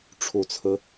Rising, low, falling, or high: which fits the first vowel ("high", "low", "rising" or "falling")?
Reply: low